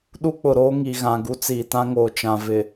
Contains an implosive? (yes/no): yes